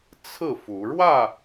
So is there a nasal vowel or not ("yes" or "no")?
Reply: no